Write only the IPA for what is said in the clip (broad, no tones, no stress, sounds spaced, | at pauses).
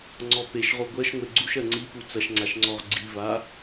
ŋ͡ǀ ɔ p e ʃ ʁ o ɡʷ ɜ ʃ ŋʷ e ɡ͡ǀ u ʃ ɜ ŋ͡ǀ i p u t͡s ɐ ʃ ŋ͡ǀ a ʃ ŋ͡ǀ ɔ ʁ ɡ͡ǀ i v a